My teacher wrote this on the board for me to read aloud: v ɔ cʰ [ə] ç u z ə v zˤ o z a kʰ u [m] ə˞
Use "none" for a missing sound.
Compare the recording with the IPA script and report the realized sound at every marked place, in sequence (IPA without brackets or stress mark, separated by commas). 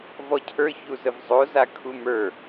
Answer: ə˞, m